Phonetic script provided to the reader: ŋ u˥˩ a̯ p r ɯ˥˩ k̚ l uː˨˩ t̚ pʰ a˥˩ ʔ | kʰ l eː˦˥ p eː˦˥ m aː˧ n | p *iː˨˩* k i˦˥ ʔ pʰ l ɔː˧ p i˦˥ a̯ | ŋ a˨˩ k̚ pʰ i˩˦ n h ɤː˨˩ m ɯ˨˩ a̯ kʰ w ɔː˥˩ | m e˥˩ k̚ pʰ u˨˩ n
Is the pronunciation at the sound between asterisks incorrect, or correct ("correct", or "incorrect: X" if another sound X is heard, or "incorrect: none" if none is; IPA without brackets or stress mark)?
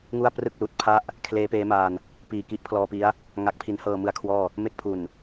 correct